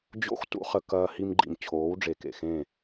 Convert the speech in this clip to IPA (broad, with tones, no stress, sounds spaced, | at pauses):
d͡ʑ o̰˦ x t ṵ˦ χ ə˨ k ɐː˧ h i˧ m ɡ͡ǃ ḭ˨ m t͡ɕʰ oː˨˦ w ɖ͡ʐ e˨ k ḛ˨ x ẽ˦˨